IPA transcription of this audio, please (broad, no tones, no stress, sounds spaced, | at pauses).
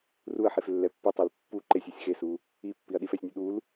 r u ɐ̯ ħ e f lː ɛ pː i tˤ i l pː u ǃ e sʲ ɛ sʲ x e s u | i pː i ɐ̯ ɗ i f ɛ sʲ nʲ u ɗ u l